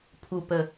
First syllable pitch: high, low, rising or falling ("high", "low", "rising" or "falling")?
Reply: low